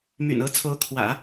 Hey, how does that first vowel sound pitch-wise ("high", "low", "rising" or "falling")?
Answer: low